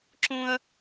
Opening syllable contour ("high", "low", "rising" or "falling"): high